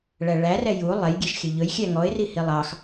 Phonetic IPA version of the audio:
ɭ æ ɭ æ r ɛ j u lˠ ɛ j ɡʲ e ʃ xʲ ɵ ʎ ɵ j xʲ æ ŋ ɔ ɪ̯ r i h i lˠ ɑ x

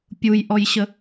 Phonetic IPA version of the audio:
pʲ u j ʔ ɔ j ɕ ə

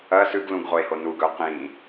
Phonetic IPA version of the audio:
ɐ s ʉ ɡ l ũ ɡ ʁ o e̯ h o n u ɡ ɵ o̯ q ĩ

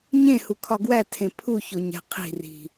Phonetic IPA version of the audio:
ɲ ẽ h u kʰ ɒ ɡ w æ tʰ ẽ pʰ u ç o ɲ æ̤ qʰ i̤ r i̤

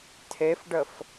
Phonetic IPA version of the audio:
tʰ e f ɖ ə f

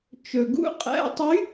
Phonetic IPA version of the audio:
t͡ʃ ɵ˩ ɡ ṵ˧˥˧ qʼ æ̰˧˥˧ tˤ y˧˥

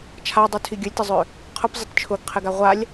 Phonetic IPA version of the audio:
t͡ʃʰ a dˤ u tʰ i ɡʲ ʊ lʲ t ɪ zˤ ø | qʰ ʊ p zˤ ɪ t t͡ʃʰ ʊ ɡ qʰ ɪ ɡ a ʁʷ a lʲ

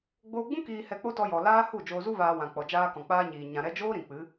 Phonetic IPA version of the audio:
ɡ͡b oː˧ ɡ͡b ũ˦ k iː˧ h ɛ˧ k͡p o˦ t ɔ˧ j ɔ˨ l aː˦ h u˦˨ d͡ʒ oː˧ z u˦ v aː˧ w ã˨ k͡p ɔ˨ d͡ʒ aː˧ k ɔ̃˨ k͡p aː˧ ɲ iː˨ ɲ ã˨ ɾ ɛ˧ d͡ʒ oː˦ ɾ ĩ˨ k͡p ɨ˨˦

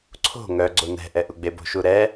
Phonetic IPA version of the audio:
ǀʰ o̤ ŋ œ ɡ͡ǀ o n ɛ̤ ʔ ɛ ʔ u ɡ͡b e b o̤ ʃ u ɾ ɛ

